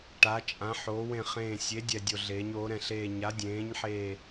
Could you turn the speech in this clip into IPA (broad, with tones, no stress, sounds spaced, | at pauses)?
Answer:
ʈ a˩˧ t͡ʃʼ ã˩˧ ħ oː˩˧ w ẽ˨˩ χ ẽː˨˩ sʲ e˩˧ dʲ ɛ˨˩ dʲ o˨˩ ɮ eː˩˧ ɲ oː˩˧ ɾ ɛ̃˨˩ ɬ eː˨˩ ɲ a˩˧ dʲ ẽː˩˧ ɲ ħ eː˨˩